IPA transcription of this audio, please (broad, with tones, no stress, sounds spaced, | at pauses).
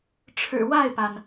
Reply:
ʈ͡ʂʰ ɻ̩˨˩ w a˥˩ ɪ̯ p a˩ n